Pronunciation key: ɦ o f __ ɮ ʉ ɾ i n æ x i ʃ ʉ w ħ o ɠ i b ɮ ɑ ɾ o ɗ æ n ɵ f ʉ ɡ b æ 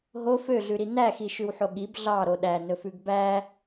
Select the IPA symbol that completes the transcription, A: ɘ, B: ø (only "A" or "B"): B